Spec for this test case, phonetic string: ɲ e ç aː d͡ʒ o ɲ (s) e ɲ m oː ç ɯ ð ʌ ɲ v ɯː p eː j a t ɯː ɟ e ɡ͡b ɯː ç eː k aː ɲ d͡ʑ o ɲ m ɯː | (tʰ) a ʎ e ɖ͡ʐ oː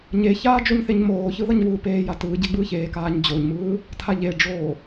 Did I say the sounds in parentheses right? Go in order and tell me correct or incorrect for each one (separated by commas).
incorrect, correct